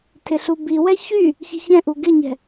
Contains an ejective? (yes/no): no